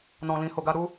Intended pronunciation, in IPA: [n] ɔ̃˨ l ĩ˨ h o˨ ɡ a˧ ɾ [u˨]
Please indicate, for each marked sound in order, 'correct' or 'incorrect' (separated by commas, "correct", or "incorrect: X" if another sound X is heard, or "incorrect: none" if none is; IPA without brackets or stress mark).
correct, incorrect: u˦